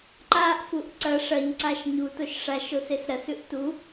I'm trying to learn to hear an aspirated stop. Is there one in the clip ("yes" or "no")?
no